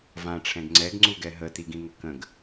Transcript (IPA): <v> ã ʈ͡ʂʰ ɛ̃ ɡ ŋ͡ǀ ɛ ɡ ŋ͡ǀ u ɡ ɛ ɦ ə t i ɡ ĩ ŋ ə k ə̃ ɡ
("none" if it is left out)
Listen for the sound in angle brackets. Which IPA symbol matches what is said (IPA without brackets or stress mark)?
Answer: v